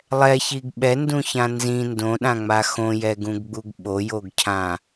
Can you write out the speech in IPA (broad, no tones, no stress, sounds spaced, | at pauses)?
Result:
lˠ ɛ ç i ɡ ɓ ɛ n d ũ ç ã n z ĩ n d õ ɗ ã ŋ͡m a x õ j ɛ ɡ ũ ɡ ɡ͡b u ɡ ɓ o j o ɡ cʰ ã